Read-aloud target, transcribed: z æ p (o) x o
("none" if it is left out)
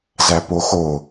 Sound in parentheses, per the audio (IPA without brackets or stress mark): o